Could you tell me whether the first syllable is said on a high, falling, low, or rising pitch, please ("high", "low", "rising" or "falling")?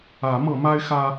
rising